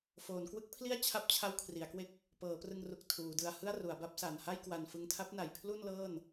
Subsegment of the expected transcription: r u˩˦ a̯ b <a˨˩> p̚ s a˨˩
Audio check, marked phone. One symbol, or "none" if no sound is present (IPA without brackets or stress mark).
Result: a˦˥